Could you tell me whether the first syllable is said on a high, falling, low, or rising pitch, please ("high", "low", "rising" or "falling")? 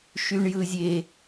high